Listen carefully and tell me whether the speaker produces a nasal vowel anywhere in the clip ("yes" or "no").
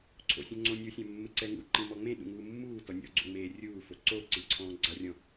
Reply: yes